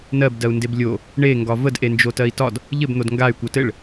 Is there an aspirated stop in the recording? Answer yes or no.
no